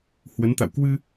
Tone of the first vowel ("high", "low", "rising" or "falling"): rising